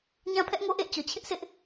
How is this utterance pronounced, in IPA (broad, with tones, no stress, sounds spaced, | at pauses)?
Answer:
ɲ ã˦ pʰ ɛ˦ ʔ ŋ o˦ ʔ ḛ˦˨ ɪ̯ t͡ɕ ɔ˨ t͡ɕʰ ɪ˦ ʔ s ɪ˦ ʔ